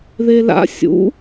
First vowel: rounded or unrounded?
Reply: unrounded